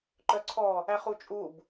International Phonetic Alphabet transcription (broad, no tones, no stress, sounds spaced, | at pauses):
ǃ œ ǀʰ ɔ | æ χ u t͡ʃʼ u b